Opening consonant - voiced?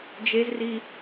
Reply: yes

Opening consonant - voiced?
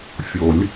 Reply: no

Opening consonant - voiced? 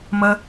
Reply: yes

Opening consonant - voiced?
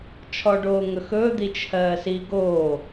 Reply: no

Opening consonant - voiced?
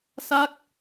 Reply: no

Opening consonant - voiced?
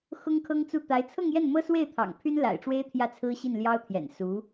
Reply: no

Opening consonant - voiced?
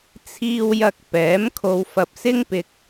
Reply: no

